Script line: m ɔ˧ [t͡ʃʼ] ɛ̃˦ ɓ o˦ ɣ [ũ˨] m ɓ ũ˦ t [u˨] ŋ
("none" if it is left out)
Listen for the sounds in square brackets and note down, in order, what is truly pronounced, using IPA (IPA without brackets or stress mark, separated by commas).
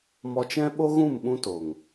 t͡ʃ, ũ˦˨, o˨